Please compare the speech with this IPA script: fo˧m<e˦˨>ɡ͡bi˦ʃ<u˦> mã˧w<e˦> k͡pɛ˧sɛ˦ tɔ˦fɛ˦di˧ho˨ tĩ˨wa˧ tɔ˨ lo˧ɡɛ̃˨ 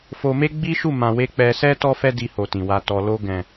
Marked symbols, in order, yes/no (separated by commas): no, no, yes